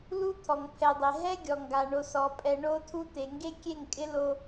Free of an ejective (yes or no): no